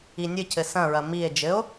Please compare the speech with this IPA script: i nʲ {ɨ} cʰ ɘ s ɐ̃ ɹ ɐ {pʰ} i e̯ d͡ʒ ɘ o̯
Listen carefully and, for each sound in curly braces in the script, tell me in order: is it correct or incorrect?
correct, incorrect: m

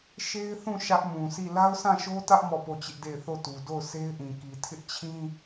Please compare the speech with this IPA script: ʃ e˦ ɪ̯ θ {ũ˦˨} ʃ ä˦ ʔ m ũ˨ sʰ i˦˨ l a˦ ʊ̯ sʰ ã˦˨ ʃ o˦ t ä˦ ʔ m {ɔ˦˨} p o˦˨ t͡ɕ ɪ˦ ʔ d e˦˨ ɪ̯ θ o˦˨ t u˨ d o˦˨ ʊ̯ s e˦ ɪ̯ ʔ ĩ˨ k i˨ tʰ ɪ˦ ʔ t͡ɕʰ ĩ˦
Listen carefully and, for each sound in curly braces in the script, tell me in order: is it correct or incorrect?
correct, correct

